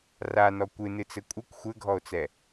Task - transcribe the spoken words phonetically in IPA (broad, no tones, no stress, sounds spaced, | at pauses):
r a n ɔ kʷ ɨ n ɨ t͡s ɘ kʷʼ ɨ kʷ xʷ ɘ ɡʱ ɔ o̯ t͡s ɛ